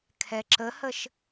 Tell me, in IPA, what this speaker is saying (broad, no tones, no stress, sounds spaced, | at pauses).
kʰ ɛ ǁ ə h ə ʃ